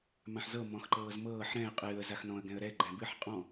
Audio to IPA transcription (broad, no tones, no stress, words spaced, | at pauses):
mãħzɤ mɔ̃xǃɤːzmɤːħ ɾɛ̃ɪ̯ qʼɨːə̯ zaxnɔ̃ə̯ ɡɛ̃ə̯ɾɛ ɡ͡ǃɛ̃bɨħ qʼɔ̃